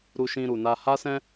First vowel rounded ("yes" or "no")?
yes